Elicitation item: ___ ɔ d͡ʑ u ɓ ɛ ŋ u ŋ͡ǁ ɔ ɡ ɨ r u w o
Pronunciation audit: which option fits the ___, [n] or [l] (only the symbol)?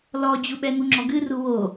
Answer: l